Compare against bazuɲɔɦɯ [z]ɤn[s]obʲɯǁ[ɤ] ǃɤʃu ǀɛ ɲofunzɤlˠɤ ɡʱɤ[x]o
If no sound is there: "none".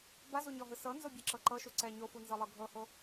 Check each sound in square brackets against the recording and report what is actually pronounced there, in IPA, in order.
s, z, ɤ, h

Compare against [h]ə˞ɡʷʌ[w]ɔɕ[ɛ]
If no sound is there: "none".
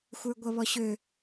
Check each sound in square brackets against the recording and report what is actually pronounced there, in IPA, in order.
xʷ, β, ø

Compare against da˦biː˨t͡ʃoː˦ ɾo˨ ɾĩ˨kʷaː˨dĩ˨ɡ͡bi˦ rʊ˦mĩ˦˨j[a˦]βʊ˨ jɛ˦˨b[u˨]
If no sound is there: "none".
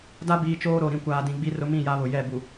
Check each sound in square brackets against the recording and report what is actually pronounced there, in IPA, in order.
a˦, u˨

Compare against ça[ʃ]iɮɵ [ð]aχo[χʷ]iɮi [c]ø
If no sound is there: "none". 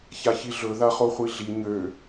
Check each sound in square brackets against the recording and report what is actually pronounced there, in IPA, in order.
ç, ð, χʷ, ɲ

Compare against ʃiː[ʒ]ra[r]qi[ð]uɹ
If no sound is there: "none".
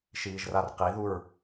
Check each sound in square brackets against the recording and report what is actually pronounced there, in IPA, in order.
ʒ, r, ð

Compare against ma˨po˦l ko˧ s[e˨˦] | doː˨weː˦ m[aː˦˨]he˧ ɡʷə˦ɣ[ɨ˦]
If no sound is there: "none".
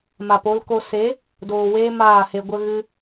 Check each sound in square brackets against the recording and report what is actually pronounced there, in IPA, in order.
e˨˦, aː˦˨, ɨ˦

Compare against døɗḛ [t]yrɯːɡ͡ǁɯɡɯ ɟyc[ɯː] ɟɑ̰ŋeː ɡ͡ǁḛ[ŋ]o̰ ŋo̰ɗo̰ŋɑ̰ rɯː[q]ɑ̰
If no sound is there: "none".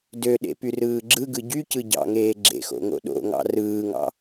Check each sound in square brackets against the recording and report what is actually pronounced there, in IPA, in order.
p, ɯ, x, ŋ

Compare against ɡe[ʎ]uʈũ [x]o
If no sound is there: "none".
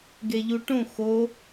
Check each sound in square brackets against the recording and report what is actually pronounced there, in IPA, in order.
ʎ, x

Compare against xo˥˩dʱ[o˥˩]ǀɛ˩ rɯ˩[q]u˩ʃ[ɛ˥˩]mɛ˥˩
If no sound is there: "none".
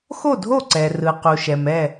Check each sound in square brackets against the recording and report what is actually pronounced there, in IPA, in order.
o˥˩, q, ɛ˩

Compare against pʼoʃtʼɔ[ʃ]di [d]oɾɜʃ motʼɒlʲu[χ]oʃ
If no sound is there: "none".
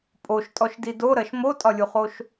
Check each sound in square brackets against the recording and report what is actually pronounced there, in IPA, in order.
ʃ, d, χ

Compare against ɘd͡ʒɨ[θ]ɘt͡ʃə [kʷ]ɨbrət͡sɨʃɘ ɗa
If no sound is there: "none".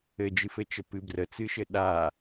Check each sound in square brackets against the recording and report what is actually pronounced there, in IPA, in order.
f, p

